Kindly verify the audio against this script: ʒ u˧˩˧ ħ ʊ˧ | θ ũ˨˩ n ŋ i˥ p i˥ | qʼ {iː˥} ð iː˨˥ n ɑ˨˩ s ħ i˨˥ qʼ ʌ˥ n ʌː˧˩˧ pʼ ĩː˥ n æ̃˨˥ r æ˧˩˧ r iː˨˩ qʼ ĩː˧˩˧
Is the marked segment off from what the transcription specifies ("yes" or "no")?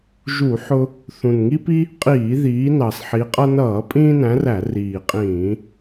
yes